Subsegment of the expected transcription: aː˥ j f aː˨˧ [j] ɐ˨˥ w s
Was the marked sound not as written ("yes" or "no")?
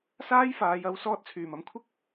no